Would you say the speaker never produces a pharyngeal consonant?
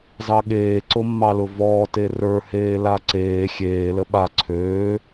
yes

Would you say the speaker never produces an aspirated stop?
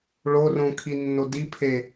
no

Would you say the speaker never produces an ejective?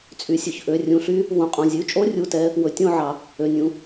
no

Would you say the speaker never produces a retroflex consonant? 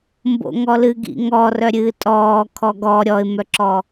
yes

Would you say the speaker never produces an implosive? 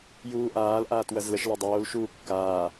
yes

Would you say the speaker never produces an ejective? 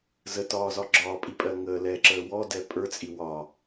no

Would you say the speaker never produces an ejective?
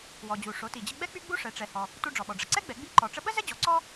yes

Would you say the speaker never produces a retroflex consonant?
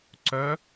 yes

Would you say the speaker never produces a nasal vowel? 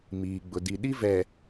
yes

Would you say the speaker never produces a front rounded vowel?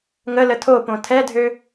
no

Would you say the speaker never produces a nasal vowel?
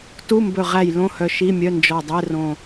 no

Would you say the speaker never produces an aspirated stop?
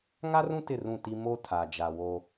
no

